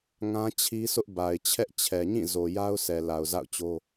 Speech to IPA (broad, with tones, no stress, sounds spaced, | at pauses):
ŋ ã˦ t͡ɕʰ i˦ s ʊ˦ ʔ b a˨ ɪ̯ t͡ɕʰ ɛ˦ ʔ t͡ɕʰ ɛ˨ ɲ ĩ˦˨ z o˨ j a˦ ʊ̯ sʰ ɛ˨ l a˨ ʊ̯ z a̰˦˨ ʊ̯ t͡ɕ o˦